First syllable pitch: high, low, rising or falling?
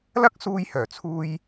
high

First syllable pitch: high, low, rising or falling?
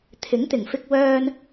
rising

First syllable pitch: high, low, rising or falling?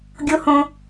high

